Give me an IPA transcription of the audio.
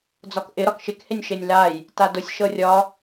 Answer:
d͡z ɒ k ʔ ɪ ɾ ɒ k ʃ ɪ k h e nʲ ʃ e nʲ l a j | t a d ʊ sʲ ʃ ɤ rʲ ɒ

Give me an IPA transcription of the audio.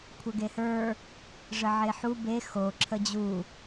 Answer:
kʷʰ ə ɡ e h ə˞ | ʐ ə ʕ e ħ u b e x o ǁʰ ə d͡ʑ u

